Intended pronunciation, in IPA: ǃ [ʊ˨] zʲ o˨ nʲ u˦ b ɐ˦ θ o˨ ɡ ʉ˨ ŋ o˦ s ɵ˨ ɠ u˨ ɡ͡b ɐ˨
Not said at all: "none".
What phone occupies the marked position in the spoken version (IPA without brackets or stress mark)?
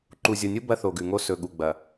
u˨